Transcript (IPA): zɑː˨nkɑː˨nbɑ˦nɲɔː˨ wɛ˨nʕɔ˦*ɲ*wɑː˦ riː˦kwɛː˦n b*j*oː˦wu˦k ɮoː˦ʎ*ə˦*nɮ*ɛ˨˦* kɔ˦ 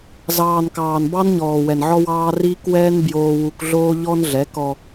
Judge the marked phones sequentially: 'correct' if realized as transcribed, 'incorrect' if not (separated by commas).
incorrect, correct, incorrect, correct